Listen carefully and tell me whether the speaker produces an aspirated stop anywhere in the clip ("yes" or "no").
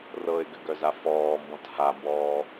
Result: no